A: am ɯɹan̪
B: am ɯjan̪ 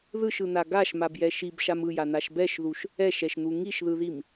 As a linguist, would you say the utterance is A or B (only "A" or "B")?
B